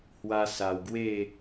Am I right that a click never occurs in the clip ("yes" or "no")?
yes